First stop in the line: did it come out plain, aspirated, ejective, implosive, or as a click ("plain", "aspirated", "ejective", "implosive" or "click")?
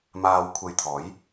aspirated